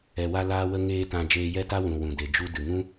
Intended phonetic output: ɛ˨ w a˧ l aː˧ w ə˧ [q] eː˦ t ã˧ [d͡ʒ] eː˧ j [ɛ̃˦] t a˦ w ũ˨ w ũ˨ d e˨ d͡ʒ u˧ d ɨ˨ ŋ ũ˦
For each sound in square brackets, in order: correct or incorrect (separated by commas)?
incorrect, correct, incorrect